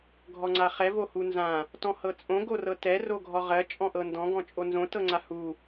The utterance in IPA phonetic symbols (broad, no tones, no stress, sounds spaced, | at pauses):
ɡʱ ɔ ŋ͡ǀ a χ ɛ v o h u n z ã | t ɔ̃ h ɤ t͡sʼ õ ɡ o r ɤ t ɛ r o ɡʱ ɔ ʁ ɜ t͡ʃʼ ɔ̃ ʔ ɤ n d ɔ̃ ɡ ɔ̃ t͡ʃʼ o n z õ t ɤ ŋ͡ǀ a h u